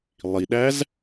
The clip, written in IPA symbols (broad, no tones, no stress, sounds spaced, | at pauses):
lˠ i ɗ æ z